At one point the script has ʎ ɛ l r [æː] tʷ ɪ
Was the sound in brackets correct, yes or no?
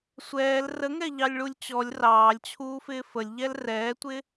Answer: no